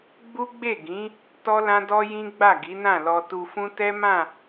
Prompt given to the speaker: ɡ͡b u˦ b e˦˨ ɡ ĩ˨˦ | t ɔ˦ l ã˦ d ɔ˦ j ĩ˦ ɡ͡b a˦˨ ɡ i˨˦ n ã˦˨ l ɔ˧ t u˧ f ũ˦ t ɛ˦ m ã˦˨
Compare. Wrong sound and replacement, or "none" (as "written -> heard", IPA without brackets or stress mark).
b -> ɡ͡b